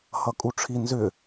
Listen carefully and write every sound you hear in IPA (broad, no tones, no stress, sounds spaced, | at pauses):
h ʌ kʼ u ʈ͡ʂʰ i n z ʏ